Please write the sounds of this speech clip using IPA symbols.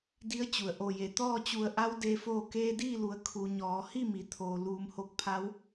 d i˧˥ ə̯ t͡ɕ u˩ ə̯ ʔ o˧˩ j e˩ t̪ ɔː˥˨ t͡ɕ u˧˩ ə̯ ʔ a˧˥ w d e˧˥ f oː˥˨ k eː˧ d iː˥˨ l u˩˧ ə̯ kʰ u˩˧ ɲ ɔː˩˧ h i˥˨ m i˩˧ t̪ʰ oː˩ l uː˩˧ m h o˧ k̚ pʰ a˧˥ w

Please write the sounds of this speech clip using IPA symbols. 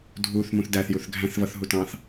dʱ u θ m ũ θ d æ θ j u θ ɡʱ æ̃ θ v ʌ θ ɦ u t ɑ̃ θ

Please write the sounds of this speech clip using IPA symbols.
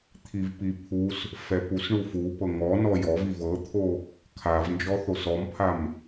t̪ʰ i v p i pʰ u s | f ɛ p u s ɳ u f u p ɤ ŋ ɔ n ɔ j ɔ v i v ɤ t̪ʰ o | kʰ a v n d͡ʒ ɔ θ o s ɔ m pʰ a m

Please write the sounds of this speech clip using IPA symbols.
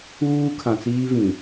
uː˦ kʰ ã˨ t͡s iː˦ v ĩ˨

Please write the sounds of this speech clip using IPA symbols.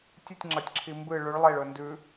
tʲ ɨ tʲ ŋ͡ǁ ɐ tʲ ǁʰ i m b ɨ ɭ ʉ ɭ lˠ e ɭ ɵ n d ʉ

